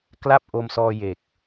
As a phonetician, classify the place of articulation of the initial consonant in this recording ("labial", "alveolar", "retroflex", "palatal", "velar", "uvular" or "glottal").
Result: velar